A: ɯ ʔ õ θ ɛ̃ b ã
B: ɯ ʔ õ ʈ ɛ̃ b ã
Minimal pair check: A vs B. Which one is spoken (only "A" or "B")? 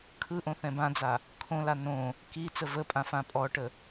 A